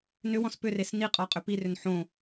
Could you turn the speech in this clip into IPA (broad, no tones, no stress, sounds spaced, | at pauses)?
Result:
n ʏ w ɔ̃ s p ʏ r e s n i qʼ ɔ qʼ ʏ p i r ʏ n ħ õ